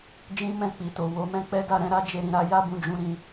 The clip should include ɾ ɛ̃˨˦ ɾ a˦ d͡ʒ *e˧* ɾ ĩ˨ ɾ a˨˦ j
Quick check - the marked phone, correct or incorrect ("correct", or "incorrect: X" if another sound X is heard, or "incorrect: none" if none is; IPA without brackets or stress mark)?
correct